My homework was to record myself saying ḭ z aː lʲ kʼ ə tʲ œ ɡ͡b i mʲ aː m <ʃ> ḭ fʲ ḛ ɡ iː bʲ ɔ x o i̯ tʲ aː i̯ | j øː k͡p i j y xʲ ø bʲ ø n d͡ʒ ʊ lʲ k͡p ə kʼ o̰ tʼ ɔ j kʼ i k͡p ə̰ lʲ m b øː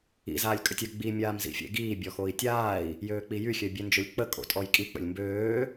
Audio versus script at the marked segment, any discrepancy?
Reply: yes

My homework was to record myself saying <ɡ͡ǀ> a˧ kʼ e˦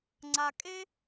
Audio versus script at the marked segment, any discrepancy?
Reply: yes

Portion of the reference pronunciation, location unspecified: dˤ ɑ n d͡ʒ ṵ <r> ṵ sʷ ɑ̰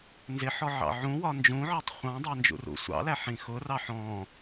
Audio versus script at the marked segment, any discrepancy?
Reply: no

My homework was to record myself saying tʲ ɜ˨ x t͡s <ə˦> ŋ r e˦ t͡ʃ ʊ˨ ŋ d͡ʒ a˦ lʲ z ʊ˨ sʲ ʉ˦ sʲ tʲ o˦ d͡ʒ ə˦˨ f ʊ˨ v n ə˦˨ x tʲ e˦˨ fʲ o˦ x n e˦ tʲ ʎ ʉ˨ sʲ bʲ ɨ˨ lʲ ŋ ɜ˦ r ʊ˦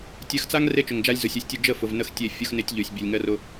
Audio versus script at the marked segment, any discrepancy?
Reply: yes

